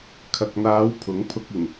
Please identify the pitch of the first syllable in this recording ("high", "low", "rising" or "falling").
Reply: low